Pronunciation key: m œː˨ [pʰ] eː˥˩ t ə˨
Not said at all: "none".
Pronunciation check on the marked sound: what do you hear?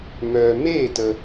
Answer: m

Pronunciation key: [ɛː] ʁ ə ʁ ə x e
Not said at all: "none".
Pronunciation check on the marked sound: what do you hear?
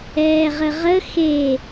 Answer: ɛː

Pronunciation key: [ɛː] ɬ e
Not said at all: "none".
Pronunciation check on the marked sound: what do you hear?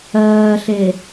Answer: ɜː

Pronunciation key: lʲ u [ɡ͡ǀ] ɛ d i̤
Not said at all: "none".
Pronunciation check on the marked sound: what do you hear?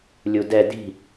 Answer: d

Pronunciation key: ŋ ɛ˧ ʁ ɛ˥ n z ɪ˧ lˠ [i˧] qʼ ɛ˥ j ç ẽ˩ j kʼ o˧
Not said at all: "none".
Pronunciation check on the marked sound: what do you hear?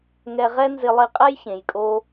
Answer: i˧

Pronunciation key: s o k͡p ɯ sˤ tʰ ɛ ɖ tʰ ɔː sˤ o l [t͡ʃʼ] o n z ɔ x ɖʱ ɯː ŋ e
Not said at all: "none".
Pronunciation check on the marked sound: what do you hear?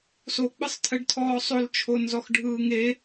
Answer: t͡ʃʰ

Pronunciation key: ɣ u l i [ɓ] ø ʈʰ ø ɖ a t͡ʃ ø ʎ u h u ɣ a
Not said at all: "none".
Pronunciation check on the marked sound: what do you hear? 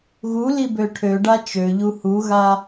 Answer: b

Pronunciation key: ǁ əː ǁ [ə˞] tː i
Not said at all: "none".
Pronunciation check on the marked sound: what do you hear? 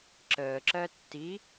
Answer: ɜ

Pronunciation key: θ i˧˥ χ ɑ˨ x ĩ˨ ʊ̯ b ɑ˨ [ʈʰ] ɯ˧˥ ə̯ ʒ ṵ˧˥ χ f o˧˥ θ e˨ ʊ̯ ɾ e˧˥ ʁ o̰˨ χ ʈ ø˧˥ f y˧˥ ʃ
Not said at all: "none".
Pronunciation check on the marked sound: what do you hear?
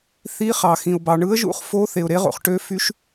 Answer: ɳ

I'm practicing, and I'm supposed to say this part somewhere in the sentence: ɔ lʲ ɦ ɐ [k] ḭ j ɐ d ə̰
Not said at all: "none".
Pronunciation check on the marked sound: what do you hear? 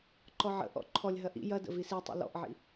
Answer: ʔ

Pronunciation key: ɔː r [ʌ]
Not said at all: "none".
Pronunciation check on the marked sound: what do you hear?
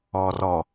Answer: ɔ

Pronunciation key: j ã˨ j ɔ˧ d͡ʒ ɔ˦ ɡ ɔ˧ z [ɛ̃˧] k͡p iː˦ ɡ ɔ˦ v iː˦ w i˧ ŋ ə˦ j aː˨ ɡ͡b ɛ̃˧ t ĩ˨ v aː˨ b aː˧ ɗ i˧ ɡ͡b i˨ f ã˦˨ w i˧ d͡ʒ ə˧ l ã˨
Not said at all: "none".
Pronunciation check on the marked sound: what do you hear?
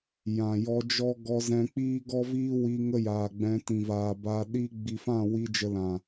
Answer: ɛ̃˧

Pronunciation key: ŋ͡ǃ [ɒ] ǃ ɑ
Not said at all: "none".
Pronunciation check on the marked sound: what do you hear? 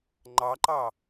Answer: ɑ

